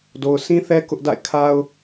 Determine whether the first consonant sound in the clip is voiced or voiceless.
voiced